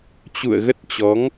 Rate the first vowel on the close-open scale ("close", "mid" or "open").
close